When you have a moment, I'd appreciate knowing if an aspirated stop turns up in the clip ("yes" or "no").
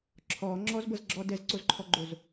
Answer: yes